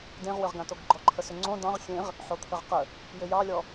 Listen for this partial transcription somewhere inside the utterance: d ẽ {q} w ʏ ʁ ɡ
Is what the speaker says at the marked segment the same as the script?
no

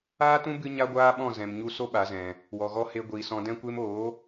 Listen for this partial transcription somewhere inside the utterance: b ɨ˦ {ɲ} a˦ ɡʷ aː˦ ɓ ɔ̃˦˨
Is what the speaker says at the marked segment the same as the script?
yes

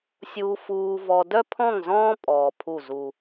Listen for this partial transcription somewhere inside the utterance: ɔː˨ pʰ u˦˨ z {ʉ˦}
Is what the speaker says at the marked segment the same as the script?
no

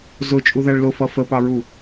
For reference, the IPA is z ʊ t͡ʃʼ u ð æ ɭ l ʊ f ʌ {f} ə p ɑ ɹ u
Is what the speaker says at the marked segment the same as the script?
yes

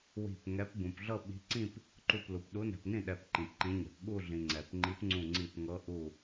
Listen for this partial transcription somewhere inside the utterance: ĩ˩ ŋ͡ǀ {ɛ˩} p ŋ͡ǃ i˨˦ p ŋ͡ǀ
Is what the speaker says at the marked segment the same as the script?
yes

